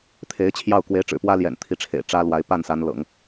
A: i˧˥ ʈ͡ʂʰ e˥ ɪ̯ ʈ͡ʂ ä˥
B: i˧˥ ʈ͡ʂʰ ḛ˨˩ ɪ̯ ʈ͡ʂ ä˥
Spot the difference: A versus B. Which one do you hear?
B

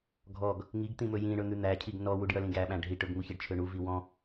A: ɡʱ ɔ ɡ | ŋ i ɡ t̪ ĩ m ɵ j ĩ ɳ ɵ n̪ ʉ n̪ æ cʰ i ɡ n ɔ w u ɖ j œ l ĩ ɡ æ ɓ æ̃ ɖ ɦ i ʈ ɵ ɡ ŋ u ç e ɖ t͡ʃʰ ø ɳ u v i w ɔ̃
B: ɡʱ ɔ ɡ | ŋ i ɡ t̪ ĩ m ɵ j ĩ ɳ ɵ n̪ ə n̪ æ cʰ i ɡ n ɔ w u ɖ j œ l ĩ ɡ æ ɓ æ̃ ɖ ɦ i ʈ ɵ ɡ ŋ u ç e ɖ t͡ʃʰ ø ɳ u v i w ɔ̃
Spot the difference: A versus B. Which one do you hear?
A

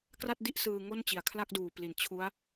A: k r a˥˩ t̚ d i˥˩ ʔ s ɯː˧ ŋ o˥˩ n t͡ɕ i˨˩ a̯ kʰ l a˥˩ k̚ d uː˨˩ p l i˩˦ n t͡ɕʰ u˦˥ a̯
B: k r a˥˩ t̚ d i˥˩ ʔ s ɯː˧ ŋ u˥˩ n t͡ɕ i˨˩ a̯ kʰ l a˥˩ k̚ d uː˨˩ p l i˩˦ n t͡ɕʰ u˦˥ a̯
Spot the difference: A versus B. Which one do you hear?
A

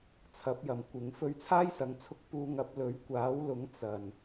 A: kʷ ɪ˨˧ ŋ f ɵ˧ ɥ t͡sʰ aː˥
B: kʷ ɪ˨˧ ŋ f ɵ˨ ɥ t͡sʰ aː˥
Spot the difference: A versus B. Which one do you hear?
A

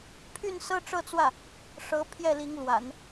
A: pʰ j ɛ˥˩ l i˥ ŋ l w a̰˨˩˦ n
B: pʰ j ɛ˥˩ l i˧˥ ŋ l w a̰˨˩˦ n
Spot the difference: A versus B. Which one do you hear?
B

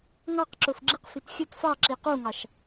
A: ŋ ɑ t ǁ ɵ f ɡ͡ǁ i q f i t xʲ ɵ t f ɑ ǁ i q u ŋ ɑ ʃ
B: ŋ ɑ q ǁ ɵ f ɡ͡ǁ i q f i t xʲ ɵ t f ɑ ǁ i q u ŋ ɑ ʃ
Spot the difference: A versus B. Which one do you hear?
B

